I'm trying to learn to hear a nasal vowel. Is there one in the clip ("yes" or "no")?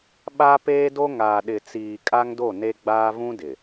yes